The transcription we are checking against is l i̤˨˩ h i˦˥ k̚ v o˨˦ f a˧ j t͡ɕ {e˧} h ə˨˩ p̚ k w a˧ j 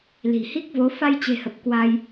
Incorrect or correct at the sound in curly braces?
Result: incorrect: e̤˨˩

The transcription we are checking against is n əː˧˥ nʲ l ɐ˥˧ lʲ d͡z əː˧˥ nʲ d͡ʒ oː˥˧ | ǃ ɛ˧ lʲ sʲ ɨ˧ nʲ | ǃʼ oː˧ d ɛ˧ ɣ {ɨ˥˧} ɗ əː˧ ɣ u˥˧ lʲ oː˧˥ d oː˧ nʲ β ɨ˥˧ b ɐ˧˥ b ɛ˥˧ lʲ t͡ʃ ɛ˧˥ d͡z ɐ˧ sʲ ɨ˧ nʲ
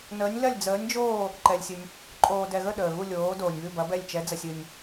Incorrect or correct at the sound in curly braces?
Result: incorrect: ə˥˧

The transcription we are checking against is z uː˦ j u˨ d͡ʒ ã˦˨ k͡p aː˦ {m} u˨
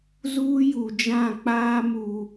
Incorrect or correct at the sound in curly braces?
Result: correct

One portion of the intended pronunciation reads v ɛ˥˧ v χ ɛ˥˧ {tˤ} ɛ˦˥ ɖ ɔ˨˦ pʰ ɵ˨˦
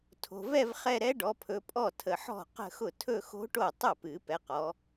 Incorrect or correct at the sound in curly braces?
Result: incorrect: ɾ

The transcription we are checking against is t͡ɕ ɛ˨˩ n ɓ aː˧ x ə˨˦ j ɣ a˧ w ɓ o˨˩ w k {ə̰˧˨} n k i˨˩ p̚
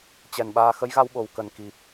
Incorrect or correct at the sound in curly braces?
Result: incorrect: ə˨˩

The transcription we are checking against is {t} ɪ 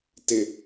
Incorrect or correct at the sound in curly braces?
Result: correct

